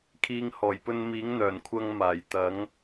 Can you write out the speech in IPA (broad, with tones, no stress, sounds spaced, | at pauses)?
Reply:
kʰ iː˨˧ ŋ h ɔː˨˩ j p ɵ˧ n m iː˨˥ ŋ n̪ œː˨˩ n kʷʰ ɐ˧ ŋ m aː˨˩ j t̪ ɐ˨˥ ŋ